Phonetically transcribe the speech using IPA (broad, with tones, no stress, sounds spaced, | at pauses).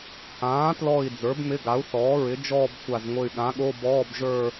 h ãː˩˥ t l ɔ˧˩ i̯ d͡z ə˞˩˥ b m ɪ˧˥˧ ɡ a˩˥ u̯ θ ɔː˩˥ ɹ ɪ˩˥ d͡ʒ ɔː˥˧ b xʷ a˧˩ z ŋʷ ɘ˧˩ y̯ ɠ ã˩˥ ɠ o˧˥˧ b ɔː˧˥˧ b ʒ ə˞˥˧